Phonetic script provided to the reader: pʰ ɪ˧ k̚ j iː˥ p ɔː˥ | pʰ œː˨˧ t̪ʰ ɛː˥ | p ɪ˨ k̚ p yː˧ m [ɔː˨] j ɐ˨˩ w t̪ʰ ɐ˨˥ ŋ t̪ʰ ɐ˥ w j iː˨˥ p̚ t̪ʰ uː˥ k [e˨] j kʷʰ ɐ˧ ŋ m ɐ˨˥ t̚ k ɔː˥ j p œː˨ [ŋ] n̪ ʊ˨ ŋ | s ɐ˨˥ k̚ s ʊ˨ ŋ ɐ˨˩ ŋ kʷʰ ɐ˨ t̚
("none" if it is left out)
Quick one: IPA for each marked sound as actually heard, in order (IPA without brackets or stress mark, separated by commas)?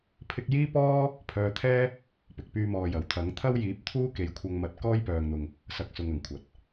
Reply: ɔː˨, e˨˧, ŋ